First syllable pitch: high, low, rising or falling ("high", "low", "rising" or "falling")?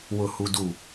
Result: low